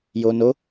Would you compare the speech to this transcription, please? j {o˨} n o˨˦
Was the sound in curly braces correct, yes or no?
yes